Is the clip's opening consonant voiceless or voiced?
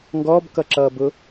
voiced